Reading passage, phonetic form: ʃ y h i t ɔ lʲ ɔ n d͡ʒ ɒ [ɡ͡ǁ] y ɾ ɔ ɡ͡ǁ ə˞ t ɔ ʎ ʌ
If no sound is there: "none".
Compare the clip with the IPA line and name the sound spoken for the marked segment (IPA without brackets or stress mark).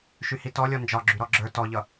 ɡ͡ǁ